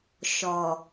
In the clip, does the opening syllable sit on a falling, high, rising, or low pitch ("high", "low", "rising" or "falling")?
low